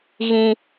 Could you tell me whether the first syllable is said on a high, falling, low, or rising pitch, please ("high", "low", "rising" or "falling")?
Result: high